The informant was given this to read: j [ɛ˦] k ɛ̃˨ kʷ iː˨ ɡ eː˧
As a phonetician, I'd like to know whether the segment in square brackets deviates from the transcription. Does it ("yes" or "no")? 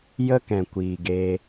yes